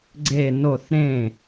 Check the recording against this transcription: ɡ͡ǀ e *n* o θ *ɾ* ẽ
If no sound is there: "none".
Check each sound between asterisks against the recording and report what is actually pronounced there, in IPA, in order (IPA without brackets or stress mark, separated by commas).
n, ɾ